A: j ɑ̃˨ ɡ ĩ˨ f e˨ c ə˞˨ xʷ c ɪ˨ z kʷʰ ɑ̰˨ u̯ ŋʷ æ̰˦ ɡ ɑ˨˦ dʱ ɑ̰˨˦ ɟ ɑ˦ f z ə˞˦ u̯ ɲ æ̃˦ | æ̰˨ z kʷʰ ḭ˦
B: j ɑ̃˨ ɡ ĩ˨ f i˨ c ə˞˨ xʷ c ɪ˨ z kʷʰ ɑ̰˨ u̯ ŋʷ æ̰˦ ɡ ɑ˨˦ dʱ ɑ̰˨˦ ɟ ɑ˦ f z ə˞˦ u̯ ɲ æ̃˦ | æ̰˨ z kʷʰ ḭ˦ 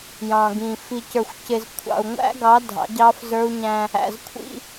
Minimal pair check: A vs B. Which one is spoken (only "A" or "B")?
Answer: B